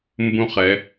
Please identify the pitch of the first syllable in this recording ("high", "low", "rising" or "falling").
high